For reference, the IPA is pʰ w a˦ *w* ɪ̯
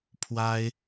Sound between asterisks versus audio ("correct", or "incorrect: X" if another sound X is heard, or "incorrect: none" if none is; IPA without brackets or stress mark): incorrect: none